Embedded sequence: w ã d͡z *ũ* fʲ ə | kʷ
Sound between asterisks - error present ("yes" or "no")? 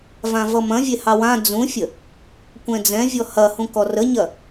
no